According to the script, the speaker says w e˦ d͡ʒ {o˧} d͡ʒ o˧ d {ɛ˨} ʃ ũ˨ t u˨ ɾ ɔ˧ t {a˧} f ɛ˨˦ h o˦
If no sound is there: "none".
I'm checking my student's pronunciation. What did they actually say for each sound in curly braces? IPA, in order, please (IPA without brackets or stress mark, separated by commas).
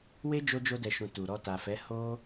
o˧, ɛ˨, a˨